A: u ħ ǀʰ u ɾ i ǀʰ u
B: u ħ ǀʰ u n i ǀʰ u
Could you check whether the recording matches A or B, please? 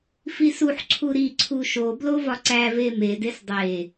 A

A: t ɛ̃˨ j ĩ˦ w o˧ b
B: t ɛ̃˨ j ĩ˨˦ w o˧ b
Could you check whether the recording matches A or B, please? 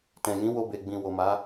B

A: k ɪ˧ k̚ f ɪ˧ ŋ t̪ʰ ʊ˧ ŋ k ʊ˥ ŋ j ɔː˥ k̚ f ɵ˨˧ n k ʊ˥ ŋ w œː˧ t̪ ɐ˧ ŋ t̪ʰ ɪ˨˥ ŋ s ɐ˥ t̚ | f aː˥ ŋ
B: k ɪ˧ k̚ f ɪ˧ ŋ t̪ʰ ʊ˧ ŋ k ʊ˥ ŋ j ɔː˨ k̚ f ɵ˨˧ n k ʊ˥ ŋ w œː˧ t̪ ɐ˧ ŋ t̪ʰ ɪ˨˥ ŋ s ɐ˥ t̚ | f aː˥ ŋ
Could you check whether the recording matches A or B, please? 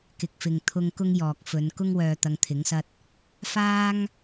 B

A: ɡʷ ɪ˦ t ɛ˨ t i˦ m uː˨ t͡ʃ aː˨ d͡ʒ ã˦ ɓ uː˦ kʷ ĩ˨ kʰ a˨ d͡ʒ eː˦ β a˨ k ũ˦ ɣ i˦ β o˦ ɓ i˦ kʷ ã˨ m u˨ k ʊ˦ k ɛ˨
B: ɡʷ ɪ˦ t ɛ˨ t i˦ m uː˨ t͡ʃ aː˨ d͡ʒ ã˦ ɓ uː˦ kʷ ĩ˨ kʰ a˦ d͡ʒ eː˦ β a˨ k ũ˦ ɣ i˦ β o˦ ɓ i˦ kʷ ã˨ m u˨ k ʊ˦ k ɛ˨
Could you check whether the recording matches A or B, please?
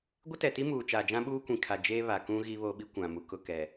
A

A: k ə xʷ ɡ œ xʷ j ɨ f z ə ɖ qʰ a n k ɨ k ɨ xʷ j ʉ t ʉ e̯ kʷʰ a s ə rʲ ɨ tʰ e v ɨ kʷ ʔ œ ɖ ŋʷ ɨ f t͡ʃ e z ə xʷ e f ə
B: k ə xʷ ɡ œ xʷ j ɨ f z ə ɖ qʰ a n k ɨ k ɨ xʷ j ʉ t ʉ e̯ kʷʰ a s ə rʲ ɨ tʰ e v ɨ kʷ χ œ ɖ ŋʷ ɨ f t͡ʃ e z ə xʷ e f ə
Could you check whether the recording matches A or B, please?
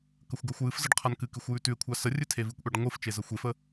A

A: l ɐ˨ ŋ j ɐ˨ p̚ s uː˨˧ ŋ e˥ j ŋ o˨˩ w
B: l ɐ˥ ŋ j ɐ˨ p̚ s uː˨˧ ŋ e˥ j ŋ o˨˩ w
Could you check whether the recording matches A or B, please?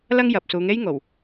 B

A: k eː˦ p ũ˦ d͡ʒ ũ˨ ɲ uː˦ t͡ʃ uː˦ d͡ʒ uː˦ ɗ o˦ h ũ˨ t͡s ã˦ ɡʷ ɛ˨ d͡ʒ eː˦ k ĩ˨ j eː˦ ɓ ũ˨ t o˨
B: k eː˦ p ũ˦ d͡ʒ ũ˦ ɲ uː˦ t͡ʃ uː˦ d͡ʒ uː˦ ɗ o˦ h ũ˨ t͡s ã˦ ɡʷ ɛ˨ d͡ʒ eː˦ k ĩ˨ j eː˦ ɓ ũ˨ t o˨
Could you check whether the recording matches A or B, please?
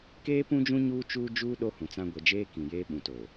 B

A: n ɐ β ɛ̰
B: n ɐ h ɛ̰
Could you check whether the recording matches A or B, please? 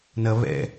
A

